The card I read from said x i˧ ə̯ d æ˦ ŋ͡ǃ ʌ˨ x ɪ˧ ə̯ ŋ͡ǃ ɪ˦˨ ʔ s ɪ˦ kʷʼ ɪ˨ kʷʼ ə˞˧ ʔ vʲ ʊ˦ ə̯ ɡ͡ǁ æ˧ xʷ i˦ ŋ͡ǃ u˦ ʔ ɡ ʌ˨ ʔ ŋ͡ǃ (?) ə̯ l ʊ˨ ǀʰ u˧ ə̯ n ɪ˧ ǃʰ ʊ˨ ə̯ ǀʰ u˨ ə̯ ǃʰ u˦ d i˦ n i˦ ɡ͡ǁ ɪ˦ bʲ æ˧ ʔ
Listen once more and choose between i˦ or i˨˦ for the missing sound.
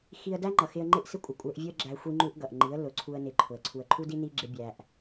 i˨˦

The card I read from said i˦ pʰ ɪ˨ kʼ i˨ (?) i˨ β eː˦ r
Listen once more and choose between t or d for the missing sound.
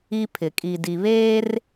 d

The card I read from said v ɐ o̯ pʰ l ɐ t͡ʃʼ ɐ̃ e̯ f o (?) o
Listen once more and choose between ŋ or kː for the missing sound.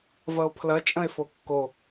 kː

